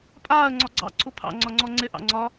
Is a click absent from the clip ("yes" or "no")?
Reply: no